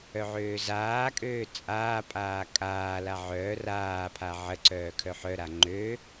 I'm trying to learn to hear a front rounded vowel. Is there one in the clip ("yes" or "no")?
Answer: yes